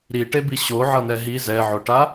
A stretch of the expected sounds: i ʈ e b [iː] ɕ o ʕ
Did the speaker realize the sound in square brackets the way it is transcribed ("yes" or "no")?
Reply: no